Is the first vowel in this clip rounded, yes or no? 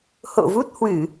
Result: yes